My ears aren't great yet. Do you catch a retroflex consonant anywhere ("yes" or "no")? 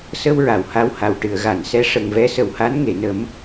yes